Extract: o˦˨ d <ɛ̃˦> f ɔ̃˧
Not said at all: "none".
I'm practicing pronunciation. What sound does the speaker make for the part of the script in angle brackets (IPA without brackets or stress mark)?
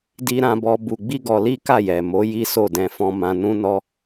ɛ̃˧